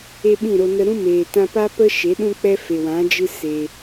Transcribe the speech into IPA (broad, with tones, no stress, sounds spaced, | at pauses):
e˦ ɓ ĩ˦˨ ɾ o˧ n ə˧ ɾ ũ˦ m eː˨ t ã˧ p a˦ p ə˦ ʃ e˨˦ ɗ ũ˦ k͡p ɛ˦ f e˨ w ã˨˦ d͡ʒ ɨ˦ s eː˧